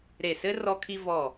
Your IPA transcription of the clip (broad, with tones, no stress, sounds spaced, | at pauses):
ɾ e˧˩ s ɘ˥ r ɔ˧ kʰ i˧ v ɔ˧˩